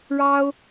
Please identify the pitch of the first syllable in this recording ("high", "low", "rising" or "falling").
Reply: high